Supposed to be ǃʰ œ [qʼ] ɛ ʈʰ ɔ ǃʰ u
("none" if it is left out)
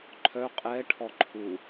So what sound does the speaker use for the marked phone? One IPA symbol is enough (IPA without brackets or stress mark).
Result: qʼ